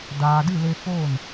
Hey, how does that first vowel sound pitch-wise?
low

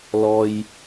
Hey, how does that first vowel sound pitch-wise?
high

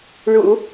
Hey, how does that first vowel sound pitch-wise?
low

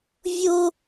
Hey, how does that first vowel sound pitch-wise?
high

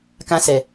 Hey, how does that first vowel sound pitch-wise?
high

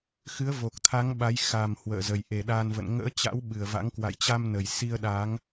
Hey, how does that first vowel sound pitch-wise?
rising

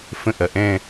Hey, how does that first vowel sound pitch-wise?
falling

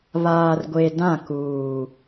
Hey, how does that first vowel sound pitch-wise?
low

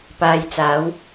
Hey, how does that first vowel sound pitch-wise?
low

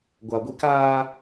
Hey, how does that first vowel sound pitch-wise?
low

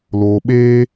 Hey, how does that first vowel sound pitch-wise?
low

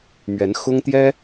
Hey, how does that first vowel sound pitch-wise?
rising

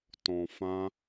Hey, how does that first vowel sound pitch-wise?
low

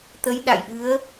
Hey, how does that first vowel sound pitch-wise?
rising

